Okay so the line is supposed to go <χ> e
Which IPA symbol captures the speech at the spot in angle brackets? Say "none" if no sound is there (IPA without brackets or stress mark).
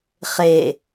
χ